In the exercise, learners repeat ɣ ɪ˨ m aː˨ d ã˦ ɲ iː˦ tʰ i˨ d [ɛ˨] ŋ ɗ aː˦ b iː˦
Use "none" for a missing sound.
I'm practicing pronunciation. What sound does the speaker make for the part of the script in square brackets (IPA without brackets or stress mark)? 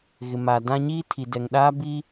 ɛ˨